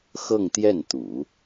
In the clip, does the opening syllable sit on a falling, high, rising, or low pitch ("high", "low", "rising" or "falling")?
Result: falling